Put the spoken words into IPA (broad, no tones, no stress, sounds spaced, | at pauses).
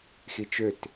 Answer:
x i t͡ʃ ø t